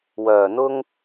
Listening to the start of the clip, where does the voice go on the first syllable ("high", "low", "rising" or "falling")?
low